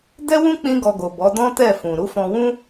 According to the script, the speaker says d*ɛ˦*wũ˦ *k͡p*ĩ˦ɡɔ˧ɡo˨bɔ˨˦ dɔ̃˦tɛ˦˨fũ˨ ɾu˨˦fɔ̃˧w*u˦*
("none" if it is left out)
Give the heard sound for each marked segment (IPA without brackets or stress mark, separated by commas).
ɛ˦, k͡p, ũ˦